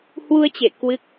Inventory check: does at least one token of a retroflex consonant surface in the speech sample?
no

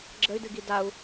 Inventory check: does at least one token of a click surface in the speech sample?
yes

